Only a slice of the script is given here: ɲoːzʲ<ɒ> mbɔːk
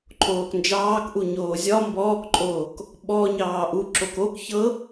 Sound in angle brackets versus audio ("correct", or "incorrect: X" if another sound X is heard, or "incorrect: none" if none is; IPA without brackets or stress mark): correct